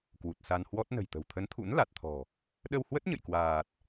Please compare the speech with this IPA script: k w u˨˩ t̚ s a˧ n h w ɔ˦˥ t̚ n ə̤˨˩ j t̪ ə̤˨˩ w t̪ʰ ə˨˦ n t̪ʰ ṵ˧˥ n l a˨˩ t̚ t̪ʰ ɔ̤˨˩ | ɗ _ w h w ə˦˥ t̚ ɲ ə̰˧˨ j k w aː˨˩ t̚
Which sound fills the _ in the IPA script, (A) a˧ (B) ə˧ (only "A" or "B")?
B